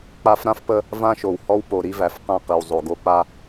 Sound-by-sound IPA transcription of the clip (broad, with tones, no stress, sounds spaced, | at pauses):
k͡p a˦ f ɾ ã˦ f p ə˦ | v ã˦ ʃ o˨ w h ɔ˦ w p o˨ ɾ i˦ v æ˨ f q ã˦˨ q i˨ w zˤ o˨ ɡ o˦ k͡p a˦